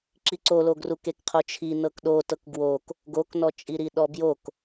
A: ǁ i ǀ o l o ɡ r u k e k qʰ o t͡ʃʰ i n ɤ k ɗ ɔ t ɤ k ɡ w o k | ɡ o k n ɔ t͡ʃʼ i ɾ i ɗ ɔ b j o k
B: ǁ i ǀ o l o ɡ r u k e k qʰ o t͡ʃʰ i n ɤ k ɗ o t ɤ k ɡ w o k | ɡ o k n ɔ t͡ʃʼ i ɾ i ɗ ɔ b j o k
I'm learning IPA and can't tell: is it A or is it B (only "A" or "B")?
B